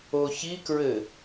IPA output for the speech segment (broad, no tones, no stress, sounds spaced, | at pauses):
o ç i k ɹ ɘ